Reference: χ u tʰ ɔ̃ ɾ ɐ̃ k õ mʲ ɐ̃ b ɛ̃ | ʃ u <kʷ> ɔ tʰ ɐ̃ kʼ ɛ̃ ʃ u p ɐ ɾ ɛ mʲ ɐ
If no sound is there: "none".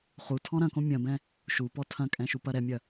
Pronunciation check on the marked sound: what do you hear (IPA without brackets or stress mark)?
p